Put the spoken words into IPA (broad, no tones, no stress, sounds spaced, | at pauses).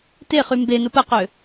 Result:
t e χ y m b e n ʊ p ə q ø